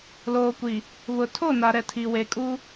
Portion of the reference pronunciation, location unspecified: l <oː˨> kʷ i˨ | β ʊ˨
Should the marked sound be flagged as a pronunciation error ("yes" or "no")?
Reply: no